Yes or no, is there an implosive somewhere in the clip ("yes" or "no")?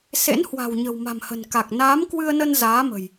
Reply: no